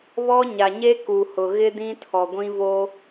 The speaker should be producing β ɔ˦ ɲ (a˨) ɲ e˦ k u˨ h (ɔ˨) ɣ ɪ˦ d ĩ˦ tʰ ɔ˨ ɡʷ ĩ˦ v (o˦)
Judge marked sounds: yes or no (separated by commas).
yes, no, yes